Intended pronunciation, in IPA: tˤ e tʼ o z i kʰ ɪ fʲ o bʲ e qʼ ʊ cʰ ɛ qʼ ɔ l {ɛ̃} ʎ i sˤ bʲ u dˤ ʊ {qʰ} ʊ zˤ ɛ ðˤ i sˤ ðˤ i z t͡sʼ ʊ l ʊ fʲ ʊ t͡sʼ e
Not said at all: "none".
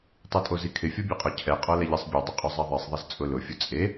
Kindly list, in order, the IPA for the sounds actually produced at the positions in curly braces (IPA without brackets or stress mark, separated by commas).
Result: ɛ, qʼ